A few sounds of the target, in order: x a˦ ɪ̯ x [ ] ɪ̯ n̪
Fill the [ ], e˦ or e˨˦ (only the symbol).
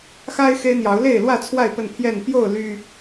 e˦